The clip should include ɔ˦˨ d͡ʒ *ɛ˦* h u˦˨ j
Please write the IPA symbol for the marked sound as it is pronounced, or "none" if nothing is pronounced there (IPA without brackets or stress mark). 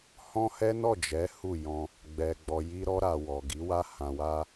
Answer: ɛ˨˦